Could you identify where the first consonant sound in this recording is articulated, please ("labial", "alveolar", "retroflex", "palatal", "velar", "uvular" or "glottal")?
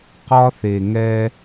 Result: uvular